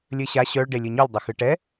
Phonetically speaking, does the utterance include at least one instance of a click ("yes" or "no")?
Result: no